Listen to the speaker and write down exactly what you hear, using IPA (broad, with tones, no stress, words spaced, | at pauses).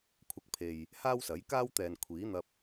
kʷʰɐ˧k̚pʰe˨j | haː˥wsɐ˨˥jkaː˥wt̪ɛː˨n kʷʰiː˨˥n̪ɐ˧p̚